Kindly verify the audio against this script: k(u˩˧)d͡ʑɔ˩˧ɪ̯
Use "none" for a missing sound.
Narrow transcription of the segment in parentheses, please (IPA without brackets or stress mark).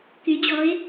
y˩˧